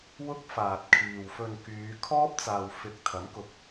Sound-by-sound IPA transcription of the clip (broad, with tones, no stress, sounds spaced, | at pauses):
w ʊ˥ k̚ f aː˨ t̚ kʰ iː˨ w f ɵ˧ n k yː˨˧ kʰ ɔː˥ p̚ t͡s aː˨ w f ɪ˨˥ k̚ t̪ʰ ɐ˨˥ m k ʊ˨ k̚